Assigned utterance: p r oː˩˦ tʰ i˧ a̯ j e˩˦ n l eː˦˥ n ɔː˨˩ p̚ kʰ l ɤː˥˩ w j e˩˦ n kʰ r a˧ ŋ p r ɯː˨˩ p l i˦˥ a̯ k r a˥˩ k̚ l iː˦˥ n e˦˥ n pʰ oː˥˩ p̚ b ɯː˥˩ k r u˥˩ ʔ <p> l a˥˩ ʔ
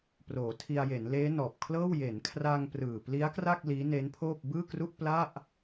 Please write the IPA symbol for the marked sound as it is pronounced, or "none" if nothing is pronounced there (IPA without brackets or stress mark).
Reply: p